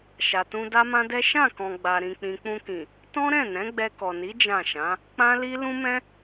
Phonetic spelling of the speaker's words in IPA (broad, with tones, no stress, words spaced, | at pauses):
ʃa˨tũ˧ da˦mã˦dɛ˦ ʃã˦˨kɔ̃˨ ɡ͡ba˧ɾĩ˧k͡pĩ˧ k͡pũ˧kĩ˨ | tɔ̃˦ɾɛ̃˦˨ nɛ̃˨˦ɡ͡bɛ˧kɔ˨ni˨˦ d͡ʒã˦˨ʃã˨˦ | k͡pã˦li˦ lũ˦mɛ̃˦